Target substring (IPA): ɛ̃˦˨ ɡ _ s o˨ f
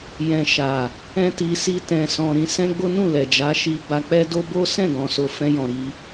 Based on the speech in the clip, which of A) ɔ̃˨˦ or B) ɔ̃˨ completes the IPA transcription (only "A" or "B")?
B